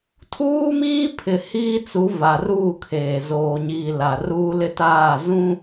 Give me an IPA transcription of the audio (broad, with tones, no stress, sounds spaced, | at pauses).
tʰ uː˦ m iː˦ pʰ ɪ˨ h iː˦ t͡s u˨˦ v a˨ r uː˦˨ kʰ eː˨ z oː˨ ɲ iː˨ l a˨ r uː˦ l ɪ˦ t aː˦˨ z ũ˦